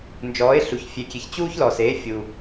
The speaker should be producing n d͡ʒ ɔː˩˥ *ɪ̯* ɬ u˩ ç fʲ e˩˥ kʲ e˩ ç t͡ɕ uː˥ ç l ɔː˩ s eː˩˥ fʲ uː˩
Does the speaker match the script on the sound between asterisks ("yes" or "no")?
yes